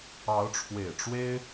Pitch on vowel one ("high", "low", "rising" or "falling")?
rising